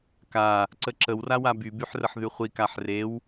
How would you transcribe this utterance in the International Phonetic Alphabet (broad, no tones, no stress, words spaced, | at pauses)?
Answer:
ka | ǀəǁəwrawa bybyħ rəħðyχʷi kaħrew